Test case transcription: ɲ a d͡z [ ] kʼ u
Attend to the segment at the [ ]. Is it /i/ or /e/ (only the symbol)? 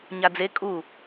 e